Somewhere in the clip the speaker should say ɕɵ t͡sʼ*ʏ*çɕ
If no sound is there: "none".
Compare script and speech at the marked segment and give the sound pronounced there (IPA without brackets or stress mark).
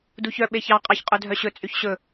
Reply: y